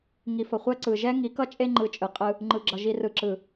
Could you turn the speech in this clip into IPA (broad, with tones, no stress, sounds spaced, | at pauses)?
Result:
ŋ i˨ f ʌ˨ χʷ ɛ˦ ǀ ɯ˨ ʒ ɛ˦ ŋ i˨˦ k ʌ˦ t͡ʃʼ e˦ ŋ͡ǃ ɯ˨ t͡ʃʼ ɯ˨ qʼ ɯ˦ | ŋ͡ǃ ɯ˨ ɡ͡ǁ ʌ˨ ʒ i˨ r ɯ˨ ǁ ɯ˨